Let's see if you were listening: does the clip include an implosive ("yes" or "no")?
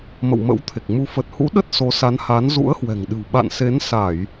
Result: yes